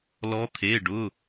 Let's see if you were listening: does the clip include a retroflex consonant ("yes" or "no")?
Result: yes